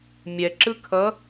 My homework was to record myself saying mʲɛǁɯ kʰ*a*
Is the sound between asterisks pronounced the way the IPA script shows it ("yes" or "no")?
no